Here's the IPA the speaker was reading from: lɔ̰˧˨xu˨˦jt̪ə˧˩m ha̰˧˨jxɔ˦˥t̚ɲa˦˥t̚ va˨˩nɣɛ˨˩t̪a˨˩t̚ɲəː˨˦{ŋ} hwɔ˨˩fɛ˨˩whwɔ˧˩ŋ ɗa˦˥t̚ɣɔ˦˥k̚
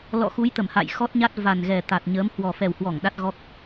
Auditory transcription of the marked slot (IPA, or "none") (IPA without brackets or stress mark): m